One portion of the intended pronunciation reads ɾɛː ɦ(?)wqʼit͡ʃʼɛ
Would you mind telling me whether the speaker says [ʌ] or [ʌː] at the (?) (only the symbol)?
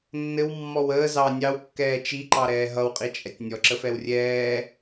ʌ